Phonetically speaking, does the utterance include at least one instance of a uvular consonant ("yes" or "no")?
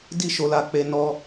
no